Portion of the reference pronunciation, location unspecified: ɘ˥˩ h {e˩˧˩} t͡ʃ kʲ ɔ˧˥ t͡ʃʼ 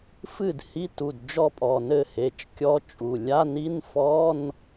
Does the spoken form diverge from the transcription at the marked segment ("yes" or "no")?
no